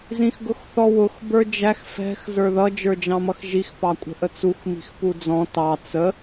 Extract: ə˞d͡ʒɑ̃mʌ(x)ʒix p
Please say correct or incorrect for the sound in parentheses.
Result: correct